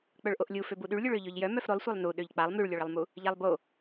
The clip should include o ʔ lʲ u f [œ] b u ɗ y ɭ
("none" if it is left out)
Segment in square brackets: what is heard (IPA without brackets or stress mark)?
ø